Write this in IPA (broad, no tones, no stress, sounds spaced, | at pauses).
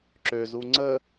ǁ ø z u ŋ͡ǀ ə